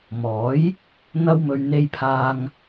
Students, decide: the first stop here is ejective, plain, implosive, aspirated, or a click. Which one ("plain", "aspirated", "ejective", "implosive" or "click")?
aspirated